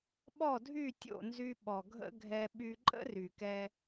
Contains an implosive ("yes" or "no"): yes